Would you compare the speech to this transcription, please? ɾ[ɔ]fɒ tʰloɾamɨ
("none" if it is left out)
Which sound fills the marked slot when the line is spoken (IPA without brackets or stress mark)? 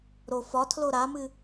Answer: o